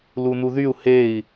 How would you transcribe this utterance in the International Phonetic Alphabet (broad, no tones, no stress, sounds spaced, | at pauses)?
l u n u ð y u̯ h e i̯